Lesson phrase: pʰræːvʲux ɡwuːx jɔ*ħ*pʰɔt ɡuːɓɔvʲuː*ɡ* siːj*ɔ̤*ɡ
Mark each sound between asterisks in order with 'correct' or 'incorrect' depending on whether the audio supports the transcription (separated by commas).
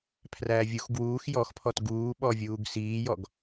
incorrect, correct, incorrect